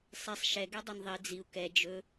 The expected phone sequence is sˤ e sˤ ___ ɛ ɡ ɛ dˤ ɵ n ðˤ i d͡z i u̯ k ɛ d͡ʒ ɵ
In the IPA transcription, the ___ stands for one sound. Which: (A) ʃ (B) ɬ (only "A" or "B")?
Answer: A